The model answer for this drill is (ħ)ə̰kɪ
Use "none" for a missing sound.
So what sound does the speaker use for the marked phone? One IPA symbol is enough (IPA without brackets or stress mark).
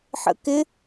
ħ